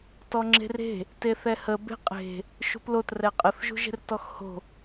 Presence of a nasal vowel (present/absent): absent